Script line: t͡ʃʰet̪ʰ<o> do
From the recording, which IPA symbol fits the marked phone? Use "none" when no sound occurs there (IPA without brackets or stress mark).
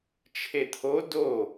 o